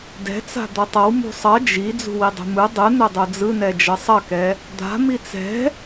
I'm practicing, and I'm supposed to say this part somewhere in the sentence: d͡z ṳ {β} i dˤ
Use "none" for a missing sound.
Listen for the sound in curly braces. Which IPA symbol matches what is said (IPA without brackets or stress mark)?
w